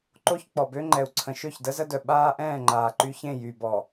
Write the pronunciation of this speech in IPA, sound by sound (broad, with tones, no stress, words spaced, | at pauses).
ǃo˦ç k͡pɔ˨bø˦ŋ͡ǃɛ˨u̯ ǀʰə̃˨ ʃø˦˨çdə˦zə˦dœ˨ ɓaː˦ ʔɛ̃ː˦˨ŋ͡ǃaː˨ǃy˦çẽ˦˨ jy˨bɔ˨